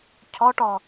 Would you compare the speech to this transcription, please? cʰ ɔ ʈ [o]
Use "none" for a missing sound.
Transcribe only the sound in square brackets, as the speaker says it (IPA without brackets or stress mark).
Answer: ɔ